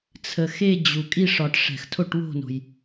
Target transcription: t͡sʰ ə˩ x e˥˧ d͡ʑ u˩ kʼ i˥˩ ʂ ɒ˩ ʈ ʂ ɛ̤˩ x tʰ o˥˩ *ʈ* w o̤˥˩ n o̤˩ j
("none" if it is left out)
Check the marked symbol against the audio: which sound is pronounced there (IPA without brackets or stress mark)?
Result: ʈ